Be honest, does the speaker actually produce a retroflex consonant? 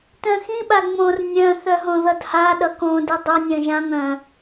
no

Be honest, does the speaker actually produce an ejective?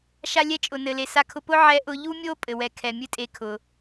yes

